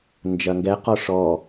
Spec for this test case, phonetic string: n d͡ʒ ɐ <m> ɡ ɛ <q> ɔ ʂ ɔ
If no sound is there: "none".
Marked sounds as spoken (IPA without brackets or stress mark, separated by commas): ŋ, q